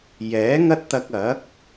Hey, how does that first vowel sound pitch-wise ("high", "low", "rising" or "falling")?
rising